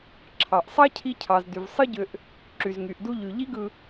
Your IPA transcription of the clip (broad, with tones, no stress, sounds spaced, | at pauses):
ǁʰ ɑ˨ ʔ sˤ ɑ˦ cʰ i˧ cʰ ɑ˨ z d y˨ v sˤ ɯ˦ ɟ ø˧ ʔ | ǁ y˨ z ŋ y˨ ʔ d u˧ ʎ y˨ ʎ i˦ ɡ ɯ˧